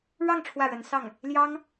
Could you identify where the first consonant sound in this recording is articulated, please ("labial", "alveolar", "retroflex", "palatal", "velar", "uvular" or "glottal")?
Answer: retroflex